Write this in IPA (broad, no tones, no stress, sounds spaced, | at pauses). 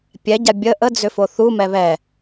pʲ ɛ ɟ a bʲ ə ʔ ə d͡z ʏ f o θ u m ɛ β ɛ